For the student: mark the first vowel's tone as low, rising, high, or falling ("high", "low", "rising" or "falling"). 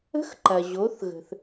rising